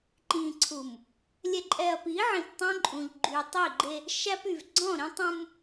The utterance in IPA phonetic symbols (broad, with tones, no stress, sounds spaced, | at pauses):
ǃ ĩ˨ ǀʰ u˨ m | lʲ ɛ˨ ǃʼ ɛ˨ ɐ̯ p i˨˦ ʕ ĩ˨ p tˤ œ̃˦ ǃʼ ũ˨ ʎ ɡ͡ǃ y˨ tˤ i˦˨ ɡ͡ǃ e˦ | ʃ æ˦ p y˨ v ɡ͡ǀ ɔ̃˦˨ ɾ ĩ˦ tˤ ũ˦ m